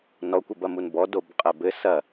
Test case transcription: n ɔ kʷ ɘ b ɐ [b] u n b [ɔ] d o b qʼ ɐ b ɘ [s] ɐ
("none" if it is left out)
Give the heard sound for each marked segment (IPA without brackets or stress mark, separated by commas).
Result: m, ɔ, s